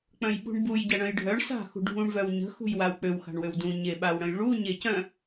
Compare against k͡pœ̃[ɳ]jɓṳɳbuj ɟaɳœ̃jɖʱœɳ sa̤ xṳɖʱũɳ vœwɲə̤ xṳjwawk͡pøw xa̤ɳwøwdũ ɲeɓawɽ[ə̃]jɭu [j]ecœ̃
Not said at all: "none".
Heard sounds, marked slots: none, ə̃, ɲ

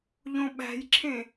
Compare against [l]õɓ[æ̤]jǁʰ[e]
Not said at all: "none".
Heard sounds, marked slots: ʎ, æ̤, ẽ

